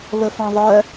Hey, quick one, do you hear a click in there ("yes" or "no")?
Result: no